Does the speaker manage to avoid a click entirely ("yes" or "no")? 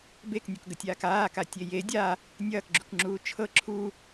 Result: no